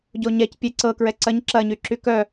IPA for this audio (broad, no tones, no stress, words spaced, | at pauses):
ɟoɲɛc pʲeǀɤ kɹɛǀɐɲ ǁɐɲy ǁykœ